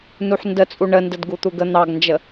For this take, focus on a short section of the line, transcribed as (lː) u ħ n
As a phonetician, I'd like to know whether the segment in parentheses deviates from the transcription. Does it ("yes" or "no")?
yes